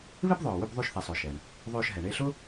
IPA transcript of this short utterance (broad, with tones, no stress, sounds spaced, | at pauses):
β ɪ˥ b ðˤ œː˩ w ʏ˦˨ b ðˤ y˦˨ ʃ θ ɛ˩ sˤ ʊː˩ ʃ ɛ˩ ɳ | ðˤ øː˦˨ ʃ ɦ ɛ˩ ɳ e˦˨ ɬ ʊ˥